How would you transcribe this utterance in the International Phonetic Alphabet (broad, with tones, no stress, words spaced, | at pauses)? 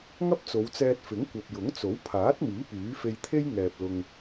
ŋɐ˥p̚t͡so˨˧wt͡sɛː˧t̚ fɪ˨˥ŋkʷɐ˨p̚ jʊ˨˥ŋt͡so˨˥wpʰaː˨˥t̚miː˨˥ pyː˨˥fe˧jt̪ʰe˥j ŋɛː˨p̚ lʊ˧ŋ